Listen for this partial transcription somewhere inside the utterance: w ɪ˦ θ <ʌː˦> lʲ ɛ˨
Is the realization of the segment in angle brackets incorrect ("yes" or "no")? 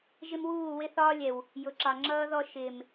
yes